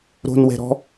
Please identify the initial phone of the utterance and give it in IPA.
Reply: ɾ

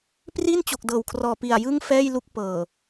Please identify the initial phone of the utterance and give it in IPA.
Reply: p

